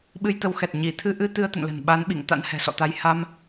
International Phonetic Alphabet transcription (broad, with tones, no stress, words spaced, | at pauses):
ɓɨ˧jt̪ə˨˦wxɛ˨˩t̚ ɲi˧˩ t̪ʰɨ˧ʔɨ˧ t̪ɨ˧ə̯t̪ə̰˧˨nlə̤˨˩n ɓa˨˦nɓḭ˧˨ŋ t̪a̰˧˥nhɛ̤˨˩sɔ̰˧˨t̪a˧j ha˧m